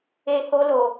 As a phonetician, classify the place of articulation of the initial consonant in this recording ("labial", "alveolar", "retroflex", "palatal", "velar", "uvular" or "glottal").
glottal